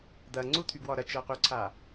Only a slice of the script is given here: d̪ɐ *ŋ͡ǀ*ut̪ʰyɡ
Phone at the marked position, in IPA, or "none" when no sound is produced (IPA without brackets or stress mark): ŋ͡ǀ